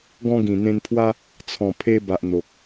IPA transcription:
ɡ ɔ̃˧ ɡ ĩ˨˩ n̪ ẽ˧ n pʰ w a˦ | t͡sʰ ɔ̃˨˩ pʰ e˧ b a˨ ʔ n̪ o˨ k̚

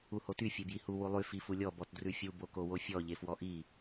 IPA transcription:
u h o t y fʲ e b j i h u w u lˠ y f i f u lʲ ɔ b ɔ t d r ʉ fʲ u b o k o w o fʲ ɔ ʎ e f w ɔ ʔ i

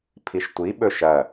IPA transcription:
pʰ i ʃ tʷ i ɓ ɵ ʃ ɐ

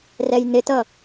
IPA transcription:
r ɛ j n ɪ t ʌ

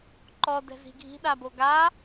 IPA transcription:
ǃ ɔ d ɛ̤ z i̤ ɡʱ i̤ ɗ a b o ɡ a

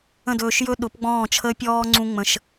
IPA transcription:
ə̃˦˨ d ɵː˧ ʃ j ɵ˦ ɗ ʊ˨˦ p ɡ͡b ɔ̃ː˦˨ t͡ʃʰ əː˦ pʲ ɔː˦ ŋ͡ǀ ũ˦ ŋ͡m ə̃˧ ʃ

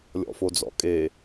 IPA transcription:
lʲ ɔ̰ f o d͡z ɔ̰ kʼ e

